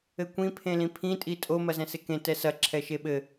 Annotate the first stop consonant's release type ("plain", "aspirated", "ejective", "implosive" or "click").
plain